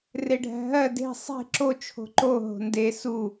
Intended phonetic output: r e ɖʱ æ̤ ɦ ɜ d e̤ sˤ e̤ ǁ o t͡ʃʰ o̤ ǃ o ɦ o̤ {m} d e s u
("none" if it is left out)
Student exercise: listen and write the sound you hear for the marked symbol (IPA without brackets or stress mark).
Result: n